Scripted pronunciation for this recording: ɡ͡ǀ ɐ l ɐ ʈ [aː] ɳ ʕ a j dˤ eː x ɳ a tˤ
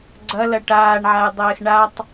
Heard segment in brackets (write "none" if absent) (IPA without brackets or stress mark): aː